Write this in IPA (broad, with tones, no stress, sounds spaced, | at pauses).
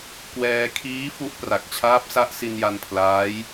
k w ɛː˧ kʰ iː˦˥ f u˦˥ ʔ p r a˨˩ k̚ t͡ɕʰ aː˦˥ p̚ s a˦˥ ʔ s i˧ n j a˧ n pʰ l aː˦˥ j